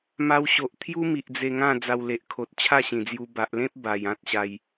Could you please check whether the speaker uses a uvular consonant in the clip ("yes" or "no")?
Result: no